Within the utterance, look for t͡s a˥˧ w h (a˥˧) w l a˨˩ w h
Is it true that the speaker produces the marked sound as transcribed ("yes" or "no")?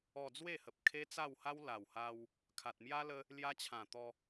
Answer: no